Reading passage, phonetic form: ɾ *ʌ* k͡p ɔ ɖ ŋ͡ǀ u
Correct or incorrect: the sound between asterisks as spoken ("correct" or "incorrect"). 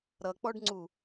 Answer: correct